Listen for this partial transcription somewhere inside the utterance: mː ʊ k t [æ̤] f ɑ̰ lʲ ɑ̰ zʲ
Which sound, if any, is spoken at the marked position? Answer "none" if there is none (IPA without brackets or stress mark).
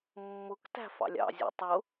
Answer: æ̤